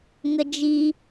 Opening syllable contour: high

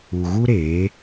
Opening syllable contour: low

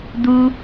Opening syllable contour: high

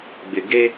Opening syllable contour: low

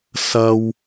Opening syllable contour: high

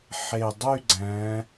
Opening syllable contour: low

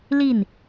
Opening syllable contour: falling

